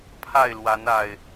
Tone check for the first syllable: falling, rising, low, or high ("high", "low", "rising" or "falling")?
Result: falling